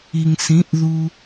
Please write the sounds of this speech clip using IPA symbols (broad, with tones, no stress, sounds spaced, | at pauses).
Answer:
i˨ ŋ s ĩ˨˦ ʔ ð u˧